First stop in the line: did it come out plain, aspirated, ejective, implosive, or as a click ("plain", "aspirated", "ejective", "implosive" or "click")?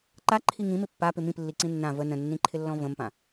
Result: click